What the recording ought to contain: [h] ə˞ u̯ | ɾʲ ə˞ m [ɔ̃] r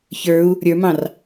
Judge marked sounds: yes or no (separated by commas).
no, no